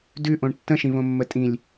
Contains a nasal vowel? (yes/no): yes